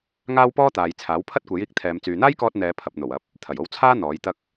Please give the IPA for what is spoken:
ŋ aː˥ w p ɔː˥ t̪ aː˨ j t͡sʰ aː˨˥ w pʰ ɐ˥ t̚ kʷ e˨˥ j iː˧ k̚ t̪ʰ ɛː˨˧ m t͡s yː˨ n̪ aː˥ j k ɔː˧ t̚ n̪ ɛː˨˧ pʰ ɐ˨ p̚ n̪ o˨˩ w ɐ˨˥ p̚ | t̪ʰ ɐ˨˩ j o˧ w t͡sʰ aː˥ n̪ ɔː˨˥ j t̪ ɐ˥ k̚

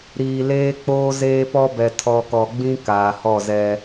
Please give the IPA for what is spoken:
ɾ iː˨ l eː˦ k͡p oː˦ z eː˦ p ɔ˦ b ɛ˨ tʰ ɔ˨ k ɔ˨ ɡ͡b ĩ˦ k aː˨ h ɔ˦˨ z ɛ˦

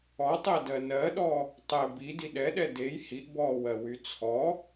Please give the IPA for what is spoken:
ɔ tˤ ɛ d ɜ n ɜ ɗ ɔ | tˤ ɛ b i d i ɗ ɛ ɗ ɛ d e j h i ʔ b ɔː w ɜ w y t͡sʰ ɔ

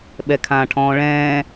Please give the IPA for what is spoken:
ɓ ɛ kʰ ãː ʈʰ ɔ̃ː ɭ ɛ̃ː

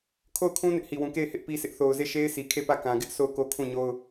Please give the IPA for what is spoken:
kʰ o˦˨ ʊ̯ kʰ ũ˦ n ɪ˦ ʔ h i˨ w ũ˨ k e˦˨ ɪ̯ h ɪ˦ ʔ p i˦ sʰ ɪ˦ ʔ θ o˨ ʊ̯ z e˦˨ ʃ e˦ ɪ̯ sʰ i˨ kʰ e˦˨ p ä˦˨ k ã˨ ɡ ɪ˦ ʔ sʰ o˦˨ ʊ̯ k o˦ kʰ ũ˦˨ ɲ o˦ ʊ̯

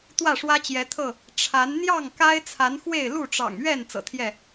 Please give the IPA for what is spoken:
t̪ w ä˥˨ ʂ w ä˦ t͡ɕ j ɛ˨˦ t̪ʰ ɤ˥˨ | ʈ͡ʂʰ a˨˦ n n̪ j ɑ˥˨ ŋ k a˦ ɪ̯ t͡sʰ a˨˦ n x w e˥˨ ɪ̯ l u˥˨ ʈ͡ʂ ɑ̰˨˩ ŋ ɥ ɛ˥˨ n t͡s ɤ̰˨˩ t̪ʰ j ɛ˥˨

